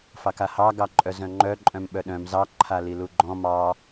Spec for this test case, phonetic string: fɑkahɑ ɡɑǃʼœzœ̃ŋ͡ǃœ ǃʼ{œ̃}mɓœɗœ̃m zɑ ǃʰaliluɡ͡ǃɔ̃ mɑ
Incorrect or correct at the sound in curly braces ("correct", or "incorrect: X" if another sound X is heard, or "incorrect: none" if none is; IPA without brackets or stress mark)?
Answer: correct